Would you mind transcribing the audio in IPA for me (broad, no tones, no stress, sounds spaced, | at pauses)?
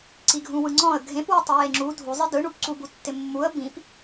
ǀ i ɡʱ ũ w ɯ ŋ͡ǀ ɔ̃ ə̯ ɡʱ ẽ p w ɪ tˤ ɪ j e ŋ͡ǁ u dʱ u zˤ ɪ d ɯ ɳ u p ǀ u b u tː ɪ mː u ə̯ b ĩ p